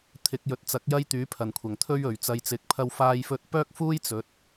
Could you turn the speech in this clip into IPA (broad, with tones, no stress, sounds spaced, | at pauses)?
t̪ʰ ɪ˨˥ k̚ j ɵ˨˥ t̚ t͡s ɐ˨˥ k̚ j ɐ˥ j t̪ yː˨˥ pʰ ɐ˨˩ n kʷʰ ɐ˨˩ ŋ t̪ʰ ɵ˥ ɥ ɵ˨ ɥ t͡s ɐ˧ j t͡s ɪ˨˥ k̚ pʰ ɐ˥ w f aː˧ j f ɵ˧ t̚ p œː˥ k̚ f uː˥ j t͡s ɵ˨˥ t̚